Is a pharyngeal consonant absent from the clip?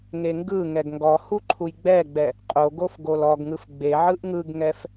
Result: no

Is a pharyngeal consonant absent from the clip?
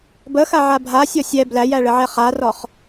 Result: no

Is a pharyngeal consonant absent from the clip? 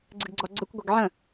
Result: no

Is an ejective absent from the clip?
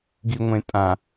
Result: no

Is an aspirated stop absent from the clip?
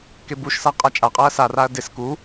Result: yes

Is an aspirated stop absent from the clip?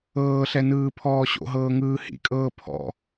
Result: no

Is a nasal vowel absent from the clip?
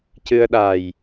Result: yes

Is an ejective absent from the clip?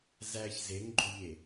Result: yes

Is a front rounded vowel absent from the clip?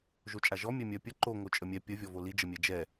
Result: no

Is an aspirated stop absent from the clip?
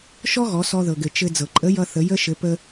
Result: yes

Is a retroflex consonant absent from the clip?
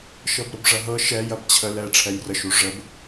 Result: no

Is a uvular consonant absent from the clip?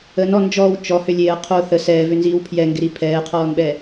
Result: no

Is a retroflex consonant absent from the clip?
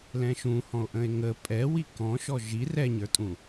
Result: yes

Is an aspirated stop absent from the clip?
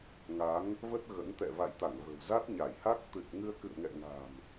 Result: yes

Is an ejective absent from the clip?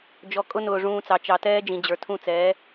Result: no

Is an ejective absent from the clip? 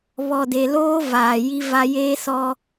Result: yes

